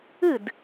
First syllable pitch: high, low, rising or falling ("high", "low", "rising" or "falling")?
falling